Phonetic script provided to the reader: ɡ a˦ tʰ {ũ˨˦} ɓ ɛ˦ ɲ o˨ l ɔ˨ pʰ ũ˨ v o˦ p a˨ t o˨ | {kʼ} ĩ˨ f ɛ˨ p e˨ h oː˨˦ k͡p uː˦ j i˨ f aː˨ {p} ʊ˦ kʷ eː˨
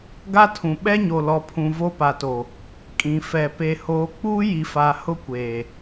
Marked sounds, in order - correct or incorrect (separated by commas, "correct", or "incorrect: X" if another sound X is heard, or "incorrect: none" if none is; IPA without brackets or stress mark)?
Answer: incorrect: ũ˨, correct, incorrect: h